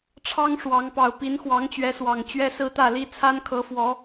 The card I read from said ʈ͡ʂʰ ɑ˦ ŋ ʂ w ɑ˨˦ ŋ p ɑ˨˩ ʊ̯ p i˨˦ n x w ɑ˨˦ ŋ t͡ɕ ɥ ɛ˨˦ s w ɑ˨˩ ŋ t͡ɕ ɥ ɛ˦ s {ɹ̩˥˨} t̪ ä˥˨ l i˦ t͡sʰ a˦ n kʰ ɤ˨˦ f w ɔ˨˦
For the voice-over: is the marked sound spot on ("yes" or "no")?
no